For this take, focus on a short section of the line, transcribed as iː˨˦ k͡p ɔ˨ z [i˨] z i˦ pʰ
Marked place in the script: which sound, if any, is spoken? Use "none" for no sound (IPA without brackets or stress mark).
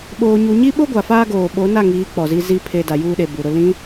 i˦